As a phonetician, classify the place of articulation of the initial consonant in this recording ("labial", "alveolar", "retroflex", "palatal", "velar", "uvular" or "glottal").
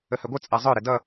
glottal